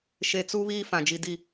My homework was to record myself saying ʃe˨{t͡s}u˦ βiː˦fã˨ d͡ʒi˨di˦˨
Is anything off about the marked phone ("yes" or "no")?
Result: no